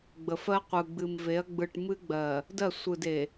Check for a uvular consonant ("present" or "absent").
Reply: present